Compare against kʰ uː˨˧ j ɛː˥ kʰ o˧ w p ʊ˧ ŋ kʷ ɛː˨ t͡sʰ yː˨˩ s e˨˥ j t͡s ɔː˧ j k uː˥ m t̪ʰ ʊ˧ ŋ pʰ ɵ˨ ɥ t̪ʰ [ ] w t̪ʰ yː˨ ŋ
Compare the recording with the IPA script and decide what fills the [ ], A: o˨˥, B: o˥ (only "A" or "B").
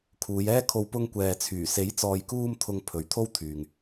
B